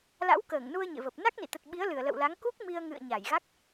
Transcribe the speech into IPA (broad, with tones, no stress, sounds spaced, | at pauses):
l a̰˧˥ w k əː˧˩ ŋ n u˧ ə̯ ɲ ḛ˧˨ v ə˨˩ p̚ n a˦˥ k̚ n ḭ˧˨ t̪ ə˨˩ t̚ ɓ i˨˦ ə̯ l ɨ˧˩ ə̯ l ə̰˧˨ w l a˨˦ ŋ k u˦˥ k̚ m i˧ ə̯ ŋ ɨ̰˧˨ ə̯ ɲ a˧˩ j ɣ a˦˥ k̚